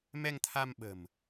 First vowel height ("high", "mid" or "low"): mid